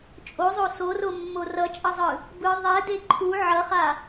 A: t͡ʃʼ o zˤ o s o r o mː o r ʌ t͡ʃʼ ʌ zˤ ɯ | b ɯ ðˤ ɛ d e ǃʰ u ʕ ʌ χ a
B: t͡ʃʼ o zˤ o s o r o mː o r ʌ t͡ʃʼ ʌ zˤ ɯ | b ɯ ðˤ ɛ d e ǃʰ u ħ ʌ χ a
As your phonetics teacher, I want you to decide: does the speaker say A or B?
A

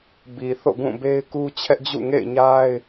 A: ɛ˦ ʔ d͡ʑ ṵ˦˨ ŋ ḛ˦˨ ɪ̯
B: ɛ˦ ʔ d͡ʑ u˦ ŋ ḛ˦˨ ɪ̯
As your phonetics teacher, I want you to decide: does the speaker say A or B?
A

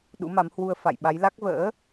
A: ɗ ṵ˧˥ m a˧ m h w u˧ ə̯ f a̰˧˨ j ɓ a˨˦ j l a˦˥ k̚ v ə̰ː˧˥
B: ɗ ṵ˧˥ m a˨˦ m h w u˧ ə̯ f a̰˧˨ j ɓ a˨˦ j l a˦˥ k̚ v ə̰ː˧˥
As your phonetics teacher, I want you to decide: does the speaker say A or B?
B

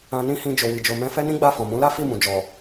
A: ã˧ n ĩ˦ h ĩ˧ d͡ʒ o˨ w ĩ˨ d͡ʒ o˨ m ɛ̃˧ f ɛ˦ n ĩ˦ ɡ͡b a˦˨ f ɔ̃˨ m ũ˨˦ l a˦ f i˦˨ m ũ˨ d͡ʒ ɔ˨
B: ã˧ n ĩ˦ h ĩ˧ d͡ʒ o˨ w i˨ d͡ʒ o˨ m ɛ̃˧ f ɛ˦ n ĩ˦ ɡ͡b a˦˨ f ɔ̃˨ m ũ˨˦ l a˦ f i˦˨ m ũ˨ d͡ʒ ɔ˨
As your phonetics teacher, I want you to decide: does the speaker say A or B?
B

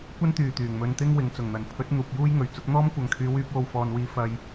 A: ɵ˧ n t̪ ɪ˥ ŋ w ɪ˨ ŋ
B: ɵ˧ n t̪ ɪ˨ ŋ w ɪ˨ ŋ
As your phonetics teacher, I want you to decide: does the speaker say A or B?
A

